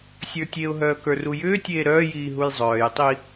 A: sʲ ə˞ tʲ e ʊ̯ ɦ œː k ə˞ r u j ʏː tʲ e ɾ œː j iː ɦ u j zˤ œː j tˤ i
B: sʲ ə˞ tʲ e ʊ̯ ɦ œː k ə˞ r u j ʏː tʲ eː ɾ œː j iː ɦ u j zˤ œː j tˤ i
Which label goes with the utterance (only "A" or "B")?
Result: B